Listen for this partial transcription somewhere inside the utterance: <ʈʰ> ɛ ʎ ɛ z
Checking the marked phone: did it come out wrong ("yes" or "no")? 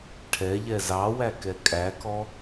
no